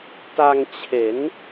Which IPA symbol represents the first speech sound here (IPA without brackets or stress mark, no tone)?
t